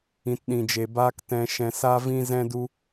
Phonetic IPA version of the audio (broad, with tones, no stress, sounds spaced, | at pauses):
ĩ˨ t ɗ ĩ˨ d͡ʒ e˨ b aː˧ k t ɛ̃˧ ʃ ɛ̃˧ s a˦ v ĩ˦ z ɛ̃˦ d u˦